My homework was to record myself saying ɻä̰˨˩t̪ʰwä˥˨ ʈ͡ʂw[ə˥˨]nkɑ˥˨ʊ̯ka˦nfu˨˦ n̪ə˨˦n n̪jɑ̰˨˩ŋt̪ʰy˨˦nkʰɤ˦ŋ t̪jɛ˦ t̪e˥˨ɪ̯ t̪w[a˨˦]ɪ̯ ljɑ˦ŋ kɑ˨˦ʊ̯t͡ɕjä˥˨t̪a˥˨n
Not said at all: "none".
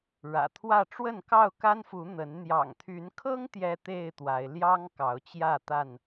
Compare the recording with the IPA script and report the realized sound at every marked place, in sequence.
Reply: ə˥˨, a˨˦

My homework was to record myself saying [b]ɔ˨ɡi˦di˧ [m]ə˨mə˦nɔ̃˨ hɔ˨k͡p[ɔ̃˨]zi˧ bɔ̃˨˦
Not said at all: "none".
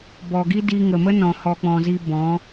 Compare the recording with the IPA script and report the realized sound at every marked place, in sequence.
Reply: b, ŋ, ɔ̃˨

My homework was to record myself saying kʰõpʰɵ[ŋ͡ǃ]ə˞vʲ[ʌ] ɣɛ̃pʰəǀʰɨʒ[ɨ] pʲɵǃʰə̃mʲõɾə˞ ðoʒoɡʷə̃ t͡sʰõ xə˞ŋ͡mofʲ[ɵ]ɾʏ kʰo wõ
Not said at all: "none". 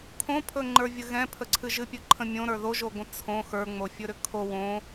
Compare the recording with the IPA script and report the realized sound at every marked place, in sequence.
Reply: ŋ͡ǃ, ə, ɨ, ɵ

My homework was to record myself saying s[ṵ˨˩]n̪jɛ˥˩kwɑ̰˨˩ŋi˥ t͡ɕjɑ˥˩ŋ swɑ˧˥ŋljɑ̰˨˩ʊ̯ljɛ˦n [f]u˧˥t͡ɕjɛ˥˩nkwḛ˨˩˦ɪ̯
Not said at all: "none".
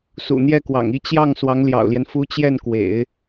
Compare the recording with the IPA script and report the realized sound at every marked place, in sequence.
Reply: ṵ˨˩, f

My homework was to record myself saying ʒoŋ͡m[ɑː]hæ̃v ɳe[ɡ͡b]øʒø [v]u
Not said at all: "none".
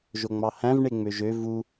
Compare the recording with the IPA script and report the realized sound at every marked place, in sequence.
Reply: ɑ, ŋ͡m, v

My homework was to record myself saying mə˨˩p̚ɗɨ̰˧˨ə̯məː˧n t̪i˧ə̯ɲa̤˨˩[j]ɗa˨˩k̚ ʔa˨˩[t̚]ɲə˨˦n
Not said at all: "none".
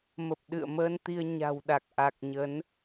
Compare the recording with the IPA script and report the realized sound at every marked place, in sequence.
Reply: w, k̚

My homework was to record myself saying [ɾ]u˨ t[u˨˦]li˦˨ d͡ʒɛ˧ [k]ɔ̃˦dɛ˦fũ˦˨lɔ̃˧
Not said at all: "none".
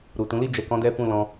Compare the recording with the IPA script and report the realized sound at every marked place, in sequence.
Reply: ɾ, ũ˨˦, k

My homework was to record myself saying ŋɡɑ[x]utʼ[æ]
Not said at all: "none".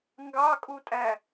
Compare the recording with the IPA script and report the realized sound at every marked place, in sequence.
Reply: kʼ, æ

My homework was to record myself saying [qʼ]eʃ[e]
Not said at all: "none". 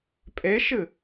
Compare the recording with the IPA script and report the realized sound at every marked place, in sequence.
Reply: pʼ, ɨ

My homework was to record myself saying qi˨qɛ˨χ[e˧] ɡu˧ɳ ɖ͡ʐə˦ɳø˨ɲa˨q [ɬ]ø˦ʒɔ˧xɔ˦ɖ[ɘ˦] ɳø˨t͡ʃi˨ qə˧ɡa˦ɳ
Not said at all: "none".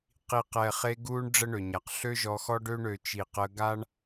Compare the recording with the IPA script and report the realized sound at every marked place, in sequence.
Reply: e˧, ɬ, ø˦

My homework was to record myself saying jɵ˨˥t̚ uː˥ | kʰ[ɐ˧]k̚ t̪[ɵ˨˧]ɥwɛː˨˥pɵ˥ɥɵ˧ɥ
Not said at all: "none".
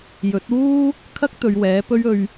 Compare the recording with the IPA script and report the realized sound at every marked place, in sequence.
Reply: ɐ˥, ɵ˨˧

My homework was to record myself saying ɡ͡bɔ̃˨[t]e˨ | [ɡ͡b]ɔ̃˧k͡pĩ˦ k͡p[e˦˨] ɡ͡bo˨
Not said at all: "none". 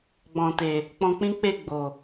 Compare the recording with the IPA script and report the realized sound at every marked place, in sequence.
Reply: t, k͡p, e˦˨

